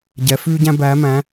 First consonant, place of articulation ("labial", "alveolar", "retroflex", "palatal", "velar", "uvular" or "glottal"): palatal